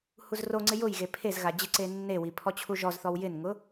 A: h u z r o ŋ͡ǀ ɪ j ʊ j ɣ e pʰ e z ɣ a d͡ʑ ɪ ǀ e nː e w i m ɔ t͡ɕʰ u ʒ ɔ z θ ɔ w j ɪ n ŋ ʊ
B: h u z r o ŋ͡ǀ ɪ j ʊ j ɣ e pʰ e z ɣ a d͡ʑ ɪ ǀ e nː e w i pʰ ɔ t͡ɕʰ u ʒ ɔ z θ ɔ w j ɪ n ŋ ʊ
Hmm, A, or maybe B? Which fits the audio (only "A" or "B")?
B